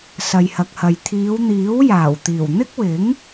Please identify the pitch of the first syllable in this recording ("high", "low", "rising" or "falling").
low